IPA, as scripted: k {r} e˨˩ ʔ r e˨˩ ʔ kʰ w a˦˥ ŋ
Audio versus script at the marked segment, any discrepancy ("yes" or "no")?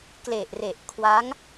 yes